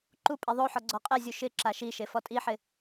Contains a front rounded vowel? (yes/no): no